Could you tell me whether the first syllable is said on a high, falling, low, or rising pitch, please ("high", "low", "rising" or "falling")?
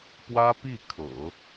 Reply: high